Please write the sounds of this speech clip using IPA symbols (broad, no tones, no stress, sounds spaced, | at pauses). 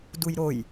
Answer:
d u j ɾ o j